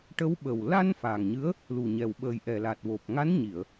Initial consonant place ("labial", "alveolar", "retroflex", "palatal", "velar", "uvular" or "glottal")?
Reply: retroflex